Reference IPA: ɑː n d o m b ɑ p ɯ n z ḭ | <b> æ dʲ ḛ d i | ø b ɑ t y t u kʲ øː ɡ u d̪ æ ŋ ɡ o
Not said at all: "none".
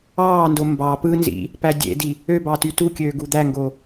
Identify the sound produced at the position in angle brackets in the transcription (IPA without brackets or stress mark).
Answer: p